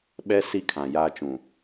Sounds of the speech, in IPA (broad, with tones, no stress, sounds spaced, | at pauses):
ɓ ɛ˦ s i˦ kʰ ã˨ j aː˦ t͡ʃ ũ˨